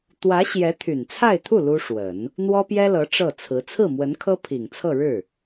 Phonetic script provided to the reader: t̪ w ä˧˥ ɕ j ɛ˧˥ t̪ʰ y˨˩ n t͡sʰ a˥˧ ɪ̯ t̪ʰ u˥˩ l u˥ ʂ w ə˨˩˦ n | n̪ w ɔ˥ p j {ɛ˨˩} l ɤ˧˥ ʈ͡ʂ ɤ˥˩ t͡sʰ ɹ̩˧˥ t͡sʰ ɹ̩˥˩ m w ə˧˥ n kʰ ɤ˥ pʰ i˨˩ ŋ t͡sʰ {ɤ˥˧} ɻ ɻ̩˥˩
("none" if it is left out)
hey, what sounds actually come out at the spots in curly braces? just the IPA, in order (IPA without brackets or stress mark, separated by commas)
ɛ˥, ɤ˥˧